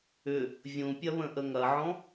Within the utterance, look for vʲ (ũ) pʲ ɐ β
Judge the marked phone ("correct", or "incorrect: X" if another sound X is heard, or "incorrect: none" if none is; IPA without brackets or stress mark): correct